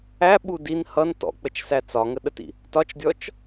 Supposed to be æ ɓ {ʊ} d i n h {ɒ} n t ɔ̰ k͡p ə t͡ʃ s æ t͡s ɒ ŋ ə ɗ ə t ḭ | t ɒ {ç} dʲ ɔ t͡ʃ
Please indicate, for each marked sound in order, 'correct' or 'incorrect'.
incorrect: u, incorrect: ʌ, incorrect: t͡ʃ

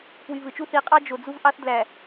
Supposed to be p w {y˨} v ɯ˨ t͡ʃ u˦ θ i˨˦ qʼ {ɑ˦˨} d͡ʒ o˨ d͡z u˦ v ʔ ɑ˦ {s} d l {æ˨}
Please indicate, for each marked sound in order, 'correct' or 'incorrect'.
correct, incorrect: ɑ˦, incorrect: θ, correct

